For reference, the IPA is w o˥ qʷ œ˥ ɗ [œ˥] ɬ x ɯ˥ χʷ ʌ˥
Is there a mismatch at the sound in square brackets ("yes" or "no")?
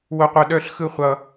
no